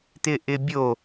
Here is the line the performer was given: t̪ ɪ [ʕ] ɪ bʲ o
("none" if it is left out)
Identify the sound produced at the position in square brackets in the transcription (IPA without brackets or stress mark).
ʔ